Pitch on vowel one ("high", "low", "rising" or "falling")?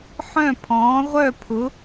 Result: falling